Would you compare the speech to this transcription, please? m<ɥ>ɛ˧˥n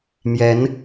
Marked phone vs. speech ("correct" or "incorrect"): incorrect